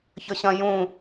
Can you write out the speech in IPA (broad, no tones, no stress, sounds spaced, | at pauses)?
ç ə ɕ ɐ̃ j ũ